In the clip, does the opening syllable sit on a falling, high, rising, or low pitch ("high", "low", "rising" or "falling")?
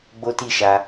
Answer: high